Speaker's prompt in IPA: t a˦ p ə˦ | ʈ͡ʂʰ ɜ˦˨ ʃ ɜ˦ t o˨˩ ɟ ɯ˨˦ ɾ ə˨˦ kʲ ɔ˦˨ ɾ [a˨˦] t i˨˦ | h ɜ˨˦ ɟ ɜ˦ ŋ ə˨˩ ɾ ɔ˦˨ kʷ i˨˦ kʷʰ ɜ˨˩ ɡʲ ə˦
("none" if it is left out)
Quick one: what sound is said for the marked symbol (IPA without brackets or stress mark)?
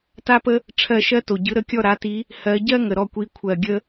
a˨˦